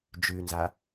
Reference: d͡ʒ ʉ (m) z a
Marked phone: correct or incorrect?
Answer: incorrect